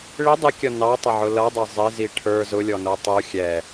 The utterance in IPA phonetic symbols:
ɭ ɪ dˤ ɪ kʲ ʌ n ɑ tˤ ə ʕ ʊ l ʌ dˤ ʌ zˤ ɪ z i ʈʰ ə˞ z ʊ lʲ ɔ n ə˞ tˤ u xʲ ɛ

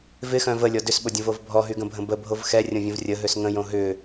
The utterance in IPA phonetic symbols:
v ɪ x œ̃ v ə lʲ ɔ d ʏ s ɓ ʊ dʲ ə̃ v o v bʱ ɔ ɦ y ɡ ə̃ bʱ ə̃ b ə bʱ o v x ɛ rʲ õ vʲ ə̃ v rʲ ə ɦ ø s ŋ ə̃ j õ ɦ ʏ

